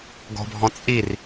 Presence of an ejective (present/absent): present